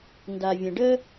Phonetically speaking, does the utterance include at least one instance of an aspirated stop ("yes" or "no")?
no